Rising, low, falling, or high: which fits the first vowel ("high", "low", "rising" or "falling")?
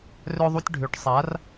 high